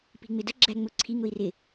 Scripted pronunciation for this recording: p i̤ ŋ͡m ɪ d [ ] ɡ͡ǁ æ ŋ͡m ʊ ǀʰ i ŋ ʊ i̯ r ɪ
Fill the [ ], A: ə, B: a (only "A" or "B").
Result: A